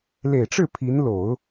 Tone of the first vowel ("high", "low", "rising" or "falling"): low